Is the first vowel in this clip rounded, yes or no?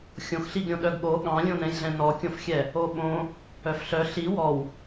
yes